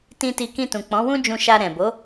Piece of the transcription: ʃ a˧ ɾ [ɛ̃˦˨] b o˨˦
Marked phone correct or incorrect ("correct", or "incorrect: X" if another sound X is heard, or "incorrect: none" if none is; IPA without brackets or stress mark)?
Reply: incorrect: ɛ̃˨